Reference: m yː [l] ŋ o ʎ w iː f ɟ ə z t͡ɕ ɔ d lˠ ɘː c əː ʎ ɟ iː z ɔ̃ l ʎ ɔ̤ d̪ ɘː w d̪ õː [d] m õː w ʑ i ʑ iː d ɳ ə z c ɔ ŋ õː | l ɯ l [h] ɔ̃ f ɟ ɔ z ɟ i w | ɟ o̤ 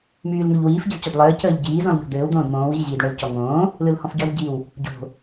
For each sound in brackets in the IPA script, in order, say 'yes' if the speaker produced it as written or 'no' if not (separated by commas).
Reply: yes, yes, yes